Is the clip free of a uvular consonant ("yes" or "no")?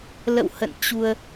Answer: yes